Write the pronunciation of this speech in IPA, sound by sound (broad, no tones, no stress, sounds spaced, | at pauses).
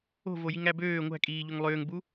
o̤ v o j i ŋ æ b øː ŋʷ æ̤ kʼ iː ʎ o ŋ lˠ øː ŋ b u